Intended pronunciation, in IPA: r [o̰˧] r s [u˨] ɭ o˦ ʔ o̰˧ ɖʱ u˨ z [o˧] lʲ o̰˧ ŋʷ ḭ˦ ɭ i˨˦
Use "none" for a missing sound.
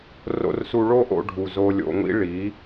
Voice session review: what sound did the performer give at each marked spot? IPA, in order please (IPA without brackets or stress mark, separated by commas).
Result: o̰˧, u˧, o˧